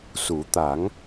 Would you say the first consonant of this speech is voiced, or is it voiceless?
voiceless